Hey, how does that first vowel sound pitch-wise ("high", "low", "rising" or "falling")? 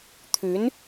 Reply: rising